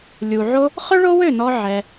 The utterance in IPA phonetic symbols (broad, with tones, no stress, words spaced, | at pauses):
lʲu˨ʕo˦ | χɵ˦ɭo˦wø˦˨nɔ˧ ʕɛ˧